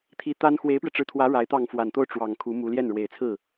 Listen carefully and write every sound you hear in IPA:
t̪ʰ i˧˥ t̪ a˥ n x w e˧˥ ɪ̯ p ɥ ɛ˧ ʈ͡ʂ ɻ̩˧˥ t̪ʰ w ä˧˥ ɻ a˧˥ ɪ̯ t̪ ɑ˥˩ ŋ f w a˨˩ n t̪ o˥˩ ʊ̯ ʈ͡ʂ w ɑ˨˩ ŋ kʰ u˧˥ m u˧˥ l j ɛ˥˩ n ɻ w e˨˩ ɪ̯ t͡sʰ ɹ̩˥˩

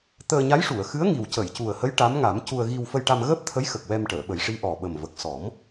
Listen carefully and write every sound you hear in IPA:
t̪ əː˧ ɲ a˧˥ j ʂ u˨˩˨ ə̯ x ɨ˧˥ ə̯ ŋ i˨˩ w c ə˨˩˨ j c u˨˩ ə̯ h ə˧˥ j ʈ a˧˥ m ŋ a˨˩˦ m c u˧ ə̯ ɣ i˧ w f ə˧ j ʈ a˧ m ɣ əː˦˥ p̚ t̪ʰ ə˧˥ j x ə˨˩ k̚ w ɛ˧ m ʈ əː˨˩˨ ɓ ə˨˩˦ j ʂ i˧˥ ʔ ɔ˨˩ ɓ ə˨˩ m v ə˨˩ k̚ s ɔ˨˩˦ m

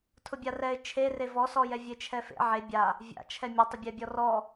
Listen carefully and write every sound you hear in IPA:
tʰ ʊ bʲ a r ɛ ɪ̯ t͡ʃʰ e r e v ɔ s ɔ j ɛ vʲ e t͡ʃʰ ɛ f ḛ ʕ e bʲ a | vʲ a̰ t͡ʃʰ ɛ mʲ ʊ tˤ ʊ bʲ ɛ bʲ ɔ r ɔ

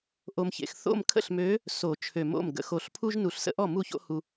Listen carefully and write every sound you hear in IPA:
ʔ o˨ m ç ḛ˨ x θ o̰˥˩ m kʰ ə̰˥˩ ɬ m ø˨˥ | s o˨˩˦ t͡ʃʰ ø˨˩˦ m o̰˥˩ m ɡ ə̰˨˩˦ x o˨ ɬ pʰ u˦ ʒ n u˨˩˦ ɬ s ə̰˦ ʔ ɔ˥˩ m u˥˩ ç o̰˦ h u˨

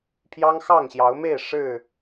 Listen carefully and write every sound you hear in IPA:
pʰ j ɑ˦ ŋ x ɑ˥˨ ŋ ɕ j ɑ˨˦ ʊ̯ m e˥˨ ɪ̯ ʂ ɻ̩˥˨

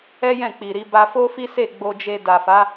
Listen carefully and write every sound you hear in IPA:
ɛ˦ j ɛ̃˦˨ k͡p i˨ ɾ i˧ b a˧ f o˦ f i˦ s e˦˨ ɡ͡b o˧ d͡ʒ e˧ d a˨ f a˨˦

